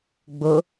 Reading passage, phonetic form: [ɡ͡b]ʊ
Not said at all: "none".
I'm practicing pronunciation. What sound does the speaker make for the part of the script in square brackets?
ɡ͡b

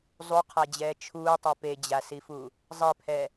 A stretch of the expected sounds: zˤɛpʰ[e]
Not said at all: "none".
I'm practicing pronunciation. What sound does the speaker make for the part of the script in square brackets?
ɛ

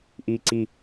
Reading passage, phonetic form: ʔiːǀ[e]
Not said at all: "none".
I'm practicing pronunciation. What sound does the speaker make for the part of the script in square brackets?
i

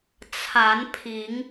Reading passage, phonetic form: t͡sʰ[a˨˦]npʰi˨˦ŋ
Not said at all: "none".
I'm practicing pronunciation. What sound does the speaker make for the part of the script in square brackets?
a˨˦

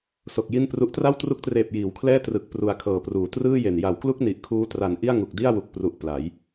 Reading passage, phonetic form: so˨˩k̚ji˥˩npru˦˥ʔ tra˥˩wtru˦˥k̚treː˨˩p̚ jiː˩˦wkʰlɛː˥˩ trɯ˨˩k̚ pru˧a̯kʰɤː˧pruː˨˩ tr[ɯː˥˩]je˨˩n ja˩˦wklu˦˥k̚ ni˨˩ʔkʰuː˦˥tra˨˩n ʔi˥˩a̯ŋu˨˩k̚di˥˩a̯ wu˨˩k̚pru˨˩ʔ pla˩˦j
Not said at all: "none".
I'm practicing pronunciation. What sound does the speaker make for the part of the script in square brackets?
ɯː˥˩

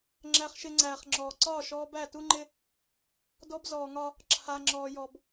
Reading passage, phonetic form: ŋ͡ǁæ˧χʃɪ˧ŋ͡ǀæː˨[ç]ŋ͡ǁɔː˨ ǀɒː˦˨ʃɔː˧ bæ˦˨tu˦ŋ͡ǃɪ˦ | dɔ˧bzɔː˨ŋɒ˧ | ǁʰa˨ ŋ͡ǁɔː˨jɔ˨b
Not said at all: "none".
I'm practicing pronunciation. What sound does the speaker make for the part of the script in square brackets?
χ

